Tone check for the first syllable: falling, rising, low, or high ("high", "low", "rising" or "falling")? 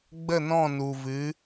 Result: falling